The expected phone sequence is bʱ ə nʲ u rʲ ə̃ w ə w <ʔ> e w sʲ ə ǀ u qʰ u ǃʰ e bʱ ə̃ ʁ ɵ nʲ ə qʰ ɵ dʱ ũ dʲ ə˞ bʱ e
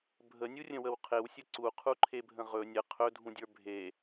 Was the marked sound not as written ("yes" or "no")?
yes